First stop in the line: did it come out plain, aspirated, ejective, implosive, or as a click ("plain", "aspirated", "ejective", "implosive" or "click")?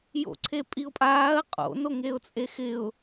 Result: click